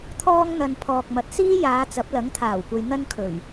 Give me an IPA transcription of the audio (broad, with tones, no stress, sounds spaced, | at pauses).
t̪ʰ ɔː˥ ŋ n̪ ɐ˧ n pʰ ɔː˨ k̚ m ɐ˨˥ t̚ s iː˥ j aː˨˧ t͡s ɐ˨˥ p̚ l ɐ˨˥ ŋ t̪ʰ aː˨˩ w kʷ ɐ˧ j n̪ ɐ˥ n kʰ ɵ˨˩ ɥ